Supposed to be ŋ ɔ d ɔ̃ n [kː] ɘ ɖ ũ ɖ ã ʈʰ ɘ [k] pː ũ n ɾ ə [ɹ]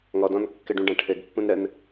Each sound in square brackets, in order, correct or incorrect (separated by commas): correct, incorrect, incorrect